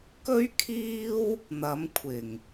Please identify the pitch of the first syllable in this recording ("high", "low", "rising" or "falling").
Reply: high